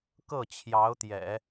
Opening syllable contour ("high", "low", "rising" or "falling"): falling